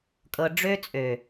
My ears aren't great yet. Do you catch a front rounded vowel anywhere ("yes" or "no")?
yes